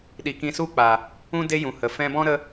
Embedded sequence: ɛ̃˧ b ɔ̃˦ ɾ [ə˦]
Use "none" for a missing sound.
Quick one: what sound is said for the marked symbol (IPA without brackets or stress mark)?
ə˦